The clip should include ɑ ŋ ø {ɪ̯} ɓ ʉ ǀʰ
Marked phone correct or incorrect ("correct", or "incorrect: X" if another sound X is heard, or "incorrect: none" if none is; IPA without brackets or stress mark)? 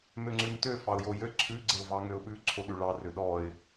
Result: incorrect: ʊ̯